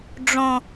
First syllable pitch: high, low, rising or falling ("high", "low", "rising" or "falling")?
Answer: high